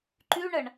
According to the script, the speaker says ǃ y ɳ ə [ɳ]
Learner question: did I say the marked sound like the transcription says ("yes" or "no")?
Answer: yes